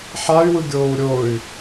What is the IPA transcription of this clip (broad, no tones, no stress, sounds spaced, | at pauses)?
ħ a y̯ w ɯ ɡʲ oː u̯ ɾʲ o y̯